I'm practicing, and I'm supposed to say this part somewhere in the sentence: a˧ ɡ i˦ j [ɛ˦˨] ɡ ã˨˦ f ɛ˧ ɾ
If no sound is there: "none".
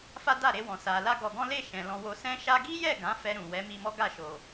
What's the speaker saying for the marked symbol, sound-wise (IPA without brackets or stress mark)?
ɛ˦˨